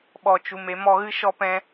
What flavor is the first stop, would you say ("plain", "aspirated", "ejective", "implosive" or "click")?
implosive